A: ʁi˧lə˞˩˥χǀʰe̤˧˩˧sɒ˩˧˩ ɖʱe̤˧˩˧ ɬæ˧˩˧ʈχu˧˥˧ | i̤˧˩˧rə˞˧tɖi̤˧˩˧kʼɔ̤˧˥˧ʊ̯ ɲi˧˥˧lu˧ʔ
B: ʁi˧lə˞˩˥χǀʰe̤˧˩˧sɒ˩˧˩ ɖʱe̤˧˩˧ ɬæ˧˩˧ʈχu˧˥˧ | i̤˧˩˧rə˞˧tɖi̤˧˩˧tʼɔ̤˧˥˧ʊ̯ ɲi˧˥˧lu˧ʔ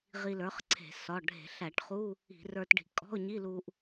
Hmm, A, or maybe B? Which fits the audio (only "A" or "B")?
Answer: A